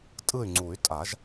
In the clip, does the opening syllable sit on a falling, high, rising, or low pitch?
falling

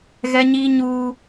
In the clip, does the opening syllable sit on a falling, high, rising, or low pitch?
high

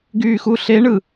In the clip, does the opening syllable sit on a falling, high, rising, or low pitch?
low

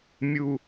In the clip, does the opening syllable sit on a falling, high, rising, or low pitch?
low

